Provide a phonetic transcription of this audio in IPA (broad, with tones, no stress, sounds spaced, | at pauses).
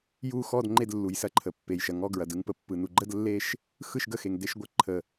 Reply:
j u˥˧ x ɔ˥˧ d ŋ͡ǃ e˥˧ d lː u˩ j s ɐ˥˧ ǃʰ ə˩ pː e˩ j ʃ ɐ˩ ŋ ɔ˥˧ ɡ ɹ ɐ˩ d ɯ˥˧ ŋ p ə˩ pː ɯ˩ n u˩ ɡ͡ǃ ə˥˧ d lː e˥˧ ʃ | x ɯ˥˧ ʃ ɡ ə˥˧ x e˩ ŋ d e˥˧ ʃ ɡʷ ə˥˧ ǃʰ ə˩